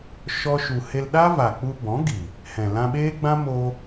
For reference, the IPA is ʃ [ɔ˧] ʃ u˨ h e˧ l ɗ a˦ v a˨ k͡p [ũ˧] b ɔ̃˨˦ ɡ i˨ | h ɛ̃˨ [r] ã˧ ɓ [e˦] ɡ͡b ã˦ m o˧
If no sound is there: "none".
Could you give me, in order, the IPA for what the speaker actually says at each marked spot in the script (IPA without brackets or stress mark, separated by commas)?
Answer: ɔ˧, u˧, l, eː˦